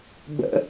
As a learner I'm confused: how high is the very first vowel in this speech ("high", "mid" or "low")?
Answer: mid